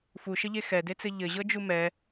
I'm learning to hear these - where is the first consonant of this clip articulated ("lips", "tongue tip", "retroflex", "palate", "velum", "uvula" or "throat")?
lips